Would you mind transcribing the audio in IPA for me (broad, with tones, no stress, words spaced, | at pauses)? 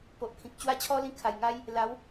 po˨ʔ kʰĩ˨k̚ t͡ɕwa˦t͡ɕʰɔ˦lĩ˧ kʰa˨˩jŋa˦j | la˨˦w